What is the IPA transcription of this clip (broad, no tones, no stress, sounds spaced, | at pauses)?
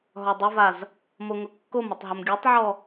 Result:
ɦ ɔ dˤ ʊ v a z | m o ŋ ʊ kː o m ʊ tˤ ɦ ʊ m ɡʲ u tˤ ʕ ɔ